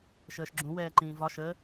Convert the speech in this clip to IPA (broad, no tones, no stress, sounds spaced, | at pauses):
ʃ əː ʃ ɡ͡ǁ ũ w ɛː ǃ ĩː v ɒ ʃ ə